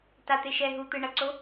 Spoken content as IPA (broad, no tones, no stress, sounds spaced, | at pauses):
t a t̪ e ʃ ɛ ɦ u t̪ ɯ ɳ ʌ ǀ o